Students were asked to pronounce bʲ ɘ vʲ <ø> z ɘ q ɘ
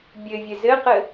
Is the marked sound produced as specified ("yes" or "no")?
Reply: no